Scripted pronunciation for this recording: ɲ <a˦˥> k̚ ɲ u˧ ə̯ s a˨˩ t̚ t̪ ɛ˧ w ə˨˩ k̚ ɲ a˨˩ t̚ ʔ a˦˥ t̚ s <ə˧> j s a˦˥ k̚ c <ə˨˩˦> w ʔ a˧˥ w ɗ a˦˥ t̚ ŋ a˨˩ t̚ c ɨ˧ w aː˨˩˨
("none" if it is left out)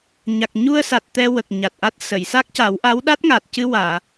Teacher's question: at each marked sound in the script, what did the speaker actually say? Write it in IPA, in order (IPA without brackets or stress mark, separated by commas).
a˨˩, ə˨˩˨, a˨˩˦